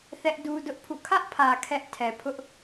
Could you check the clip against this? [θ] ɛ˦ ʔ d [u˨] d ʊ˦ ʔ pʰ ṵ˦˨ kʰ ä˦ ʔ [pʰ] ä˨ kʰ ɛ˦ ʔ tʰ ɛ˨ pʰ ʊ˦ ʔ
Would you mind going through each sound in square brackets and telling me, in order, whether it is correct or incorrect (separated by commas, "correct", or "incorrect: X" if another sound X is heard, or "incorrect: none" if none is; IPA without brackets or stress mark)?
correct, incorrect: u˦, correct